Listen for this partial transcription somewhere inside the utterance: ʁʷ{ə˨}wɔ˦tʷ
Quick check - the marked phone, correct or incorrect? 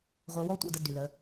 incorrect